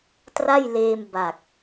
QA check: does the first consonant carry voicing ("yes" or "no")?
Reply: no